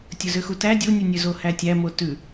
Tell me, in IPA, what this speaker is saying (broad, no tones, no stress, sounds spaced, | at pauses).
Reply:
tʲ ɵ z ø x u t æ dʲ u nʲ ʉ nʲ ø z o h æ tʲ æ m o t ʉ